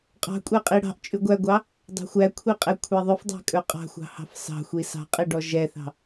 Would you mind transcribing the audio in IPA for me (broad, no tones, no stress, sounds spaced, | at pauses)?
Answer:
qʼ ɑ̤ kʷʼ ɛ qʼ i ɽ ɑ̤ ʔ t͡ʃʼ ʉ ɡʷ æ ɡʷ ɑ | dˤ æ̤ xʷ æ kʷʰ i qʼ ɛ kʷʰ ɛ ðˤ ʉ f dˤ æ̤ kʼ ɵ qʼ ɑ̤ xʷ ɑ̤ h ɑ̤ f s ɑ̤ xʷ i s ɑ̤ qʼ i ɖ ɔ ʒ ɛ θ ɑ̤